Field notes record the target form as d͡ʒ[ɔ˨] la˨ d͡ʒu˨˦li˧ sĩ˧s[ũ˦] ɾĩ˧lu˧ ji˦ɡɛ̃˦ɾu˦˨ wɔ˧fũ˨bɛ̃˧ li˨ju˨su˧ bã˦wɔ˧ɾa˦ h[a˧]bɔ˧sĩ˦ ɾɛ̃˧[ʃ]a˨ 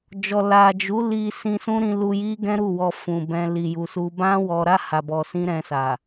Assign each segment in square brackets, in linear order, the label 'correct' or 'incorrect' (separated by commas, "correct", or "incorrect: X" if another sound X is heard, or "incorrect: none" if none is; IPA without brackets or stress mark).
correct, correct, correct, incorrect: s